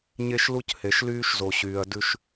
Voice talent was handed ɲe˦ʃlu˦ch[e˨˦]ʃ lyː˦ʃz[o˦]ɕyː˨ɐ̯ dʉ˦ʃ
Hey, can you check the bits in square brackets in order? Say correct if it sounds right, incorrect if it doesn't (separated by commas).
incorrect, incorrect